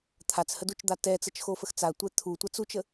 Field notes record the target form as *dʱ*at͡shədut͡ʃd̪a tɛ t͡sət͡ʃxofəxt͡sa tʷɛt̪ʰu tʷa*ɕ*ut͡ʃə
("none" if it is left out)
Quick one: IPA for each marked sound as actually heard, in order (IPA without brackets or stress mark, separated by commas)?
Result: t̪ʰ, t͡s